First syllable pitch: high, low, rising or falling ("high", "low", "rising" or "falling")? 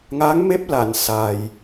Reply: rising